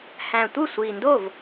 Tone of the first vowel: low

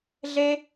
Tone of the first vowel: high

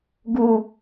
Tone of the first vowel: low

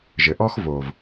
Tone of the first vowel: low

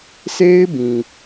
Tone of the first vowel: high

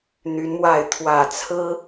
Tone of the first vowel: rising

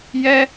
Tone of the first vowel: high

